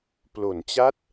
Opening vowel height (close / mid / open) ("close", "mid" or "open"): mid